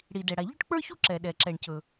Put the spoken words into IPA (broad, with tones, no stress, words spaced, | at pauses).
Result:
ɽi˩dɛ˩ɽa˩ ʎɵ˥ʈk͡pə˞˥çu˥ ǁɛ˩ɗɛ˩ ǁɛ˩ɳcɵ˩